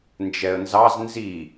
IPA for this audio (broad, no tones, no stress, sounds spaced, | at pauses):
n d͡ʒ ɛ ə̯ n z ɑ z n z i